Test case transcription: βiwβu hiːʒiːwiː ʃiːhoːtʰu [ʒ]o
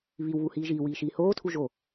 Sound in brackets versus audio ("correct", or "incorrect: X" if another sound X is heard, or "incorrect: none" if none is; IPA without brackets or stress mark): correct